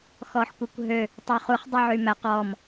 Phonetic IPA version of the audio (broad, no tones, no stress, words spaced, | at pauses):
xɔħkʷekʷɦø | tˤøχuχ dˤʉʕymæ qɔm